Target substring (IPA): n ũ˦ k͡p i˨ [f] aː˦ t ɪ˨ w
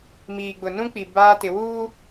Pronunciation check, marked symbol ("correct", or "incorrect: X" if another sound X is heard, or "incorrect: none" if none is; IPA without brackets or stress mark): incorrect: b